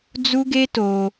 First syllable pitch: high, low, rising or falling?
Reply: high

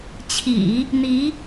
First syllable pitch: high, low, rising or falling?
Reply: low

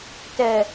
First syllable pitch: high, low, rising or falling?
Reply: low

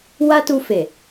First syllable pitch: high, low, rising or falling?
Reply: high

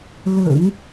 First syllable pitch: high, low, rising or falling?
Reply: low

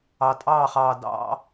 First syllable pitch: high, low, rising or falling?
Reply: low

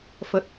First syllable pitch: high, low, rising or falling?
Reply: low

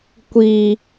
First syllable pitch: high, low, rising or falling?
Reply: low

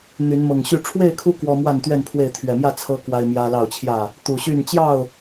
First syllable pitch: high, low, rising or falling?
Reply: rising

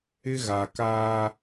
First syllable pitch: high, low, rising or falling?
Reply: high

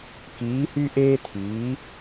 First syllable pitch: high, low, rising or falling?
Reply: rising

